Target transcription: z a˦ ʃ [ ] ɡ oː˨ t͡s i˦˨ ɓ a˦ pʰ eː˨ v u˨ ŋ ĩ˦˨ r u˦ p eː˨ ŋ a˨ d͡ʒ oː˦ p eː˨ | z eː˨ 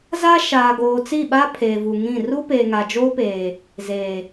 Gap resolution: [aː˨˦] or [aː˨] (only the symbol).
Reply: aː˨